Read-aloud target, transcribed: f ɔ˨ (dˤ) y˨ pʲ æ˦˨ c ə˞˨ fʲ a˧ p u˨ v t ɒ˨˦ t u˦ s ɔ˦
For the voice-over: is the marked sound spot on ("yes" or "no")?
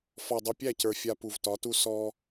yes